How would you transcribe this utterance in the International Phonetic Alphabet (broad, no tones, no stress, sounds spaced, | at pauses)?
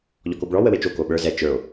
ʎ ɔ k o b ɭ ɔ w ə w e t͡ʃ o k o ɓ ə˞ z ɛ t͡ʃ ə˞ o̯